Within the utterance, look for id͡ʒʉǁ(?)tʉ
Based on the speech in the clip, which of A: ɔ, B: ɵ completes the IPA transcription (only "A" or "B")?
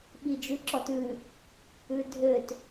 A